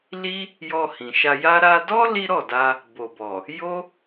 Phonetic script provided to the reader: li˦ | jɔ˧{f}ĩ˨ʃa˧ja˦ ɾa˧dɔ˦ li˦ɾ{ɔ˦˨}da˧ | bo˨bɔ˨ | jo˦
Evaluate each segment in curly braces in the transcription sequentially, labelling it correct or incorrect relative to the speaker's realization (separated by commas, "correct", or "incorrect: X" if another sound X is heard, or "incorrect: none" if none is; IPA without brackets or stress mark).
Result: incorrect: h, correct